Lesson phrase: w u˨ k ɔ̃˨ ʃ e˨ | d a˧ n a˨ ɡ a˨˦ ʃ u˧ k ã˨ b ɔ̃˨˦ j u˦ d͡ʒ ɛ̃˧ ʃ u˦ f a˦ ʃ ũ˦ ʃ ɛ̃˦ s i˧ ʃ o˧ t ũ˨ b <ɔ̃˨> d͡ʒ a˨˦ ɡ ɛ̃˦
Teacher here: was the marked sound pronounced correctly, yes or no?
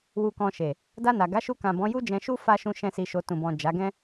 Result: yes